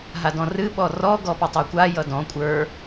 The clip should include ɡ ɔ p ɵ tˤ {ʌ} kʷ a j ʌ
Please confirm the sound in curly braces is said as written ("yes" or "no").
no